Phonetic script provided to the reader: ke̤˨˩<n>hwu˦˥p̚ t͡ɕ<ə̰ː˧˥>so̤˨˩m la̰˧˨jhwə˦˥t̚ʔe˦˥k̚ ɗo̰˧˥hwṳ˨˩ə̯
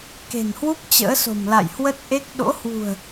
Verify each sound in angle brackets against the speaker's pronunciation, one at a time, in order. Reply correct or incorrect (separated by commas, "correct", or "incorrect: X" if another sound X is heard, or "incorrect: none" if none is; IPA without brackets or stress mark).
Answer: correct, correct